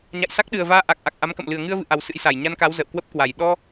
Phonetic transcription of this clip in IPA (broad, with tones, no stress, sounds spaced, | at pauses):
ɲ a̰˧˨ j s a˦˥ k̚ ɗ ɨ˨˩ ə̯ v aː˧ ʔ a˨˩ k̚ ʔ a˨˩ k̚ ʔ a˨˦ m k ə̰˧˨ m l ɨ˨˩ ə̯ ŋ ɨ˧ ə̯ v ɨ̰˧˨ ʔ a˨˩ w s ɨ̰˧˥ j s a˨˩ j ɲ a˧ n k a˨˦ w z ə̰ː˧˨ w k w ə˦˥ p̚ k w a˨˩ j ɗ ɔ˧